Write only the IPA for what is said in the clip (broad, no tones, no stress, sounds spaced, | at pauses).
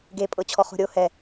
ɡ e pʼ ɤ t͡ɕʰ ɔ χ o̤ ɾʲ o h ɛ